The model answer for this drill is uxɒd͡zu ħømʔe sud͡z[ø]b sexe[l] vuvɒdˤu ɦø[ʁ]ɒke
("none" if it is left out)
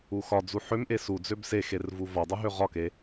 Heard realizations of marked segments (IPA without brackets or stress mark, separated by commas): ø, r, ʁ